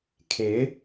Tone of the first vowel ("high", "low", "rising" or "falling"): rising